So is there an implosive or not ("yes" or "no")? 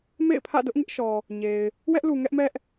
no